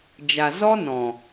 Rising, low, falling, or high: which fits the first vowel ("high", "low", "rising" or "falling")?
low